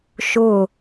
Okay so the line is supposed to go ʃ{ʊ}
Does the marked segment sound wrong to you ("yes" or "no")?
no